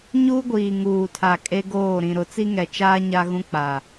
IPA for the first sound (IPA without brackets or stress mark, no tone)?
ɲ